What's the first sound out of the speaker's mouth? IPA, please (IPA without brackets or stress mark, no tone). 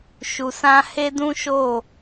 ʃ